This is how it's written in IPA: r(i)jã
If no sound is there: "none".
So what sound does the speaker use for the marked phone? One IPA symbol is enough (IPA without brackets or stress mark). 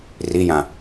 i